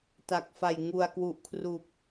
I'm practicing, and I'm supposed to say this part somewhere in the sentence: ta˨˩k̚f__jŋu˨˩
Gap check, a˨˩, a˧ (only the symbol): a˨˩